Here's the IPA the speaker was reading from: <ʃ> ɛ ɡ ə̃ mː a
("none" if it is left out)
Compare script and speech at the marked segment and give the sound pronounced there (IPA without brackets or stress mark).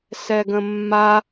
s